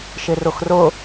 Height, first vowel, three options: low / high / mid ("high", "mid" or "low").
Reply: high